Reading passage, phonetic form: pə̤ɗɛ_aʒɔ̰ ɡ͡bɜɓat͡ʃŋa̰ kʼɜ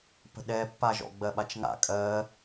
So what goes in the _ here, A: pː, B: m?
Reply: A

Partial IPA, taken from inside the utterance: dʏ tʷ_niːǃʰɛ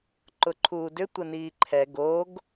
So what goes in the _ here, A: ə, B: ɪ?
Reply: A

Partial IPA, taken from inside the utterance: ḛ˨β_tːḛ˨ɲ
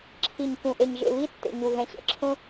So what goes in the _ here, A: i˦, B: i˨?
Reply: A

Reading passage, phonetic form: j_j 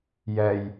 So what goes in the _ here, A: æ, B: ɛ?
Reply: B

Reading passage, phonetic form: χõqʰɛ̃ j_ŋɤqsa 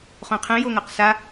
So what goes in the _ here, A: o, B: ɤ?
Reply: A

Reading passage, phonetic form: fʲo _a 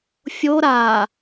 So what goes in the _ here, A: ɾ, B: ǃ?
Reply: A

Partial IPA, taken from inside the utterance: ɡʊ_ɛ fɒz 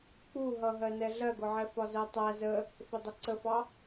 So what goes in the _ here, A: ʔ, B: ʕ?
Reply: B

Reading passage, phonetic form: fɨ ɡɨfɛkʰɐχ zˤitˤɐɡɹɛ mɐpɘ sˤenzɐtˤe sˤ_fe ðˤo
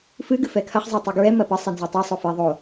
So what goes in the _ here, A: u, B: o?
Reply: B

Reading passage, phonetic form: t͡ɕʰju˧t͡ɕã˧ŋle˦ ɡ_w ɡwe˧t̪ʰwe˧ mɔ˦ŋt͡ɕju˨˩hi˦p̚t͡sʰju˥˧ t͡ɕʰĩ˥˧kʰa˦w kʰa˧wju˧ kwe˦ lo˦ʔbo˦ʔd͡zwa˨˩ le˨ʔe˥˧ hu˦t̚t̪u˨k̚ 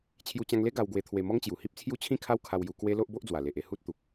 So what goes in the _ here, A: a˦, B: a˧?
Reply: B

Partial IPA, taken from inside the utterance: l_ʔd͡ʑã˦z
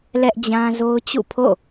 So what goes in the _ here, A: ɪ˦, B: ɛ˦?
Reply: B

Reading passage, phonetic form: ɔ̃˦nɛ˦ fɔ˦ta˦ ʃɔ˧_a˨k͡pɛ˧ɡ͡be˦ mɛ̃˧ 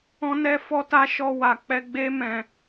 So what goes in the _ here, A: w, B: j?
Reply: A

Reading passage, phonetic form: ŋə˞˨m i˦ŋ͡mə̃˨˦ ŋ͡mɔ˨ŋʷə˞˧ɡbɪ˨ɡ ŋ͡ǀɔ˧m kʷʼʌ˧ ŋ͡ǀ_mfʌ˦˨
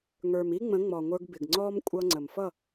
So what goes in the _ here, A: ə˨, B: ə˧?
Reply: A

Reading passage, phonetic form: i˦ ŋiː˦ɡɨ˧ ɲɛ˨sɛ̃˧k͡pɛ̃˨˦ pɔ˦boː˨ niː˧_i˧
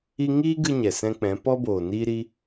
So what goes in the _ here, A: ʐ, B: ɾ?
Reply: B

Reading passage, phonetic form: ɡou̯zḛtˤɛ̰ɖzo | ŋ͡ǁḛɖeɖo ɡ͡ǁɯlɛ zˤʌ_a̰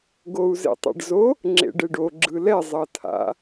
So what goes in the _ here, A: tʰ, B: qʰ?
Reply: A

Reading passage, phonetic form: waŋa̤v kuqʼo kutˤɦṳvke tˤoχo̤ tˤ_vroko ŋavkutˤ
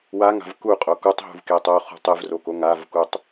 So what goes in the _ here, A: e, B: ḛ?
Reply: A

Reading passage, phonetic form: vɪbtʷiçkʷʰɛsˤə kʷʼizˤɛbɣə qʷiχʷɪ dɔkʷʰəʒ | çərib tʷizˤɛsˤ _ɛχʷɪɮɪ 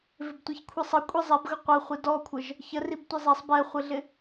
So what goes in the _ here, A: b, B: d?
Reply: A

